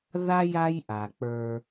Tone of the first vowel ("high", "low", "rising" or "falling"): high